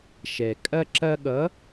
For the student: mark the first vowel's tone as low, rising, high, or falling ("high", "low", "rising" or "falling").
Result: low